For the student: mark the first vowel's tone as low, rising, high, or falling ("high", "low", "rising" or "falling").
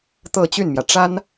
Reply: falling